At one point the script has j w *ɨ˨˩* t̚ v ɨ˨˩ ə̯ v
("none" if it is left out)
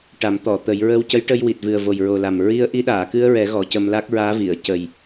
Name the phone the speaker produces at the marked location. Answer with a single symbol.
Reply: i˨˩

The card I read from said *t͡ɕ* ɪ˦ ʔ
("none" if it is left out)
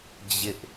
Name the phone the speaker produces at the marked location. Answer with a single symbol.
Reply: d͡ʑ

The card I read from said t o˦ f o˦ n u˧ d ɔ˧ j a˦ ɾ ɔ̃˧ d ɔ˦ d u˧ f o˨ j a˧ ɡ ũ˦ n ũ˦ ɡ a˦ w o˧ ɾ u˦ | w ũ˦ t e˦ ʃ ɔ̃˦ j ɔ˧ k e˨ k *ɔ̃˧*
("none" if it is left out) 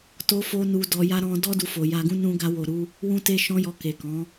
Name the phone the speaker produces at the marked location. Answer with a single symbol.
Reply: ɔ̃˨˦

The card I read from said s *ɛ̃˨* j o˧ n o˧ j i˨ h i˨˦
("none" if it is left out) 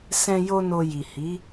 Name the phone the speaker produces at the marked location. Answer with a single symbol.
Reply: ɛ̃˧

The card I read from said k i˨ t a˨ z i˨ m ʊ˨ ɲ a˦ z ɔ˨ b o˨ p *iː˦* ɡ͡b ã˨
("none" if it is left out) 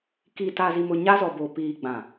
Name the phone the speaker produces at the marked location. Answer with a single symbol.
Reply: iː˨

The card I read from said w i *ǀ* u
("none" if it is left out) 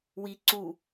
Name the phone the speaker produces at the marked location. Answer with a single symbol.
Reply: ǀ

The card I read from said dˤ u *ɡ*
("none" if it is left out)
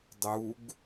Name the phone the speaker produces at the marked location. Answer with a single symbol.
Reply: ɡ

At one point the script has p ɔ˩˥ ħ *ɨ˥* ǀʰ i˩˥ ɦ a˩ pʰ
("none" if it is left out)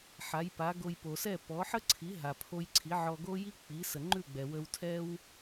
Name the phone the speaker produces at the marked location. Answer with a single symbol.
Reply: ə˥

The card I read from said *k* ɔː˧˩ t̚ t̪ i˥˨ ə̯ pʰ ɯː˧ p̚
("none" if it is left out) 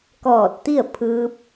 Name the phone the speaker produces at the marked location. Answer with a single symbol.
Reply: k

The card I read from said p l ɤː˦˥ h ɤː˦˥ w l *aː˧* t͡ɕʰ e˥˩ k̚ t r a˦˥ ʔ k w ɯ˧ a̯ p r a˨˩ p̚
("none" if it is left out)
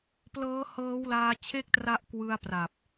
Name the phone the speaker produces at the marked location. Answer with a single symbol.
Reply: aː˧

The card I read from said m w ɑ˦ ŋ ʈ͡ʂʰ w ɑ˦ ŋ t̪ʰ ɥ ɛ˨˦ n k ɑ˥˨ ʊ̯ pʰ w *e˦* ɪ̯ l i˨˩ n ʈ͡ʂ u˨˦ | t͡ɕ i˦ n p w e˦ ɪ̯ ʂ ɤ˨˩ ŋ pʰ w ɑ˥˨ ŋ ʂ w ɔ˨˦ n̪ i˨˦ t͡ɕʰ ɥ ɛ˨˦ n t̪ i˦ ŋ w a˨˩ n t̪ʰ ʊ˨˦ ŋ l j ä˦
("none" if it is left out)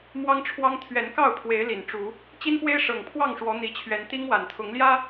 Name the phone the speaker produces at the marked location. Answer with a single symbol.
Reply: e˨˦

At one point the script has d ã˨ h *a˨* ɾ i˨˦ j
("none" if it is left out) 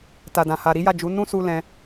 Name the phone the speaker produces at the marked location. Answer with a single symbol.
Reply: a˨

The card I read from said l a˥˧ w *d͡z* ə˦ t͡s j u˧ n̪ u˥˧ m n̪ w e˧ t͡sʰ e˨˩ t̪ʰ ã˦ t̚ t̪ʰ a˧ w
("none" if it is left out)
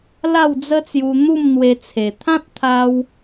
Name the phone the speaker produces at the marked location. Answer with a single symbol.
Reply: d͡z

